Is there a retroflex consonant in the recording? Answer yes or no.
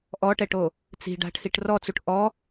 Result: yes